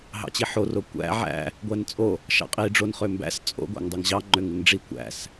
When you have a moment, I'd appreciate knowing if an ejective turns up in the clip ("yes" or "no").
yes